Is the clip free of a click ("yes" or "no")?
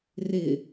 yes